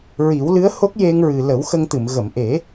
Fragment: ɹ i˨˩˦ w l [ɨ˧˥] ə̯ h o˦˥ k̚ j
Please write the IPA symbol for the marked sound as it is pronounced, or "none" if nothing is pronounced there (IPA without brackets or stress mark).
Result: ɨ˧˥